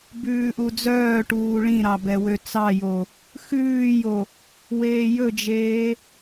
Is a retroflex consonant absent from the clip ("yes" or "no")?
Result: no